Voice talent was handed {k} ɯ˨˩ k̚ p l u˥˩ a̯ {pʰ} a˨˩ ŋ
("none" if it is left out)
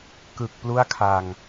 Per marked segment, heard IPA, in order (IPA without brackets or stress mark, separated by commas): k, kʰ